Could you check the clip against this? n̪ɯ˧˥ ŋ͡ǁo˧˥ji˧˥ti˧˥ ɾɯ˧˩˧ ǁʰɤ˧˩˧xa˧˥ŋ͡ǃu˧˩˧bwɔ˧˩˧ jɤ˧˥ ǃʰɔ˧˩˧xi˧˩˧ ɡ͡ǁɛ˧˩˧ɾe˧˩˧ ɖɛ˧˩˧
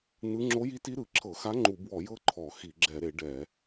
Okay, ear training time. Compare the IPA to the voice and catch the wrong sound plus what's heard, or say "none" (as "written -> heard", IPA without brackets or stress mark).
none